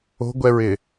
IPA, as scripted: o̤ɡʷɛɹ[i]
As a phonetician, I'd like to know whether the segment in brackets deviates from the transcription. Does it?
yes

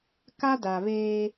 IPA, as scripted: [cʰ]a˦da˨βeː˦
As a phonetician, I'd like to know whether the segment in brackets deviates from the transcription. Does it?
yes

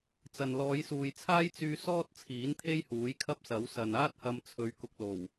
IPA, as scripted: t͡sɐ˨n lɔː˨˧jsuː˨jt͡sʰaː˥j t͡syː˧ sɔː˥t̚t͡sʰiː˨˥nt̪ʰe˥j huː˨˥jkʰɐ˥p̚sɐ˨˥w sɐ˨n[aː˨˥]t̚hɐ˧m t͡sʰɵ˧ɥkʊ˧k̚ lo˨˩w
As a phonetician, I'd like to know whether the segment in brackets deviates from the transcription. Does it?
yes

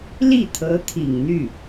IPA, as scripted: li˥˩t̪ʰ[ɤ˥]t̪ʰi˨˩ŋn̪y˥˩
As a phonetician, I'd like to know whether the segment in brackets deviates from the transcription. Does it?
yes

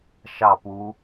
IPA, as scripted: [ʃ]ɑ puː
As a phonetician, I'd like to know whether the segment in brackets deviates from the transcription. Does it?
no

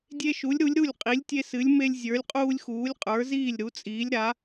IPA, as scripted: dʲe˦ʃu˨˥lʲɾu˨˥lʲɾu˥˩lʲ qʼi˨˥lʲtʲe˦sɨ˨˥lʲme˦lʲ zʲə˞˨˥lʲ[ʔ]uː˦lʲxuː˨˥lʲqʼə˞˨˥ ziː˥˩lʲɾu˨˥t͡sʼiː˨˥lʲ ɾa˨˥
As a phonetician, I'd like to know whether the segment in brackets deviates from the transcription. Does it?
yes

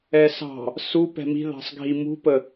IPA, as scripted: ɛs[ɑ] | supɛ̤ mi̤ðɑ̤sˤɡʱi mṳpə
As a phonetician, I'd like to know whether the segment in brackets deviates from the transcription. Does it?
yes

